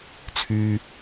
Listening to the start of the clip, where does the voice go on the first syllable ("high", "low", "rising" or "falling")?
high